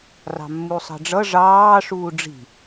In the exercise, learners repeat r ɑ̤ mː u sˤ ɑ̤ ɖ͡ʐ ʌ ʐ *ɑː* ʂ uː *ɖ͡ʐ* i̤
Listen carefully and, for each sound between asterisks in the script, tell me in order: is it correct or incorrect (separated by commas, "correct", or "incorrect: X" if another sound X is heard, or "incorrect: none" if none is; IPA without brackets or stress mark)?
correct, correct